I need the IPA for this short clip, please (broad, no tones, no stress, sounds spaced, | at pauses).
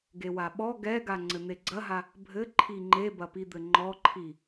ɡ e w a ɓ ɔ ɡ ɛ ɡ a ŋ͡ǀ ɘ n̪ e ɡ͡ǀ ɐ ɦ a | bʱ ɘ ǃʰ i ŋ͡ǃ e b ɐ p i d̪ ɘ ŋ͡ǃ ɔ ǃʰ i